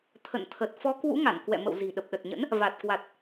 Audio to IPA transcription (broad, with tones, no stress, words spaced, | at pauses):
t̪ʰə̰˧˨nt̪ʰə˨˩t̚ fɔ˨˦kwṵ˧˥ŋa˧˩n kwɛ̰˧˨mə̰˧˨w zi̤˨˩ɗə˨˩p̚ɗə˨˩t̚ɲə̰˧˥n | va˨˩t̚kwa˨˩t̚